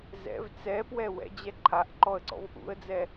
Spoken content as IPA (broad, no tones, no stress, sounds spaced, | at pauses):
z ɛ̰ v t͡s ɛ p w ɛ w ɛ̰ d͡ʑ ɛ ǃʰ a ʔ ǃ ɔ ə̯ ǀ ɔ̰ v ʔ ṵ ə̯ d͡z ɛ